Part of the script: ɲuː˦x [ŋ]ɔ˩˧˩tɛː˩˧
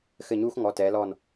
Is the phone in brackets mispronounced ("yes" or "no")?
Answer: no